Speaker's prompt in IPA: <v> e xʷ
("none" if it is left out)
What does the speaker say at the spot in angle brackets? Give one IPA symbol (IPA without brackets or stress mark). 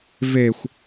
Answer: v